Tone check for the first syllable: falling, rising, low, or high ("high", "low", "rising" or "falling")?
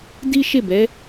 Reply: high